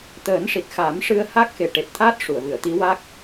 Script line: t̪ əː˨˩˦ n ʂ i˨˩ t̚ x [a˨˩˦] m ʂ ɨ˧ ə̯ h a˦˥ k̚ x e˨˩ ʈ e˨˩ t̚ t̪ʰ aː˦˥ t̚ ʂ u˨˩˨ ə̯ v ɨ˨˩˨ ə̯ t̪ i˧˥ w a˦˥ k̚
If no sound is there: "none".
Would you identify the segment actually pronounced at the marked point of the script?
a˨˩˦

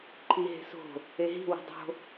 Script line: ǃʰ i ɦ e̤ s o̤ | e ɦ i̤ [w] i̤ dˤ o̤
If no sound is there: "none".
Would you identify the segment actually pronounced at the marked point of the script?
w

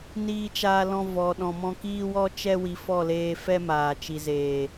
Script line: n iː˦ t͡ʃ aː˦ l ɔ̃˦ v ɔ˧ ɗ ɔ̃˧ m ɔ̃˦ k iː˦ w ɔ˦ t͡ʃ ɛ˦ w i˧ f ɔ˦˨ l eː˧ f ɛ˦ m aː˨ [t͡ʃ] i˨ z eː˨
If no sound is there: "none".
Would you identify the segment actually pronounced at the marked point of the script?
t͡ʃ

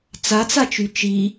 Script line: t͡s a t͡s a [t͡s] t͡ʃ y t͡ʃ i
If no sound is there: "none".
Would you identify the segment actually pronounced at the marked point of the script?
none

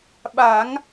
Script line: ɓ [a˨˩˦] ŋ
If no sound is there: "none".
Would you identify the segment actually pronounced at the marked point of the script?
a˨˩˦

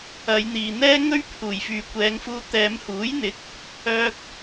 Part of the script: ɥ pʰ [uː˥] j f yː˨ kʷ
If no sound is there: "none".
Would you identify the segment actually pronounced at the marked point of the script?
uː˨˩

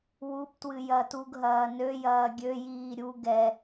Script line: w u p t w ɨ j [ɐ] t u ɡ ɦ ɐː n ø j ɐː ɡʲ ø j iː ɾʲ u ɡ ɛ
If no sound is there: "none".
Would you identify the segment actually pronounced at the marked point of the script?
ɐ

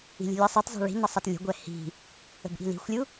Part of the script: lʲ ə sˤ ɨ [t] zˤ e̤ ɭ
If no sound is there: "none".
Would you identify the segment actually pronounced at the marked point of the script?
t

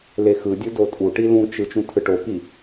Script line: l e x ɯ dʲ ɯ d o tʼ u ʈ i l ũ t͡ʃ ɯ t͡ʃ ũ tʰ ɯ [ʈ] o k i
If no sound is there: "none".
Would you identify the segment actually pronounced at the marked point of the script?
ʈ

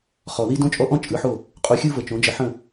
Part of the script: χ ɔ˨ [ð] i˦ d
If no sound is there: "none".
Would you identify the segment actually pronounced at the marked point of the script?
ð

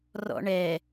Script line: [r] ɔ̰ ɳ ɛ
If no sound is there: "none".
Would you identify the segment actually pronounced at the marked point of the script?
r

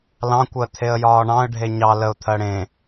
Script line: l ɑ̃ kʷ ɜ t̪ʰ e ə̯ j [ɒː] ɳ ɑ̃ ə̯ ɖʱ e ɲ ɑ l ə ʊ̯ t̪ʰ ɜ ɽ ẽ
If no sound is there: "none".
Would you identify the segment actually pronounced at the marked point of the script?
ɒː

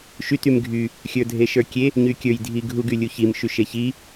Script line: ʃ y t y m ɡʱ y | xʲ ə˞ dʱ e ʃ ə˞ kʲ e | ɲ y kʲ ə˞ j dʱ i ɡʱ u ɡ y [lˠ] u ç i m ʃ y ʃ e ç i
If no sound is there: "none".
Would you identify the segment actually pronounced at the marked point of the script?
lʲ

